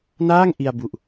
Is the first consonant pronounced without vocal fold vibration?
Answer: no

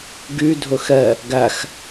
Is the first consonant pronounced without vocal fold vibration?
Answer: no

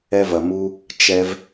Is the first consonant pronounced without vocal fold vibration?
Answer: no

